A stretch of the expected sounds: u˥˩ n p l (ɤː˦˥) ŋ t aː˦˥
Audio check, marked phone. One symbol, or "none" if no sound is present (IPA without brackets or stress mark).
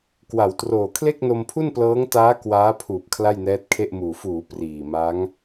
ɤː˦˥